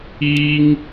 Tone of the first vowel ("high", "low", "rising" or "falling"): high